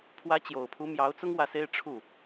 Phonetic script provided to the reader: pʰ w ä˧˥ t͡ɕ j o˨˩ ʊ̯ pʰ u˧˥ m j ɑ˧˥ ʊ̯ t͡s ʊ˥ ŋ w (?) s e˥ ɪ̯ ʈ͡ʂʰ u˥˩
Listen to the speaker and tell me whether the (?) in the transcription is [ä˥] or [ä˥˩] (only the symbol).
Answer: ä˥˩